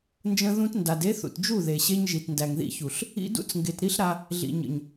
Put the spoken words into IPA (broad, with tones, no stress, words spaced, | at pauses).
nd͡ʒə̃˧ðũ˧t nda˨de˦θṵ˨t d͡ʒu˦˨ðe˨ɕe˧ɲ ʒi˨tndæ˨ŋðḭ˧çu˨ɬ | ḭ˧dṵ˦t͡sŋɡe˨t ɾi˦ɬɾa˧ | ɮḭ˨ɲə̰˨ɲ